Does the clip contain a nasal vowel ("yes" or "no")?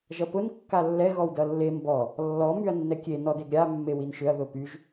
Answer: no